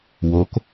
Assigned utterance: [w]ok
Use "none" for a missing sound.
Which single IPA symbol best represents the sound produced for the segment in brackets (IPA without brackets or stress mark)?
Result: w